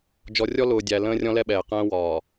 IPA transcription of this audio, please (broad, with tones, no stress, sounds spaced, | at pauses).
d͡ʒ ɔ˨ rʲ ɔ˦ l ʊː˨ dʲ æ˨ l ə̃ː˦ rʲ ɔ̃˦ l ɛ˦ ɓ ɛː˨ q ə̃ː˦ w ɒː˨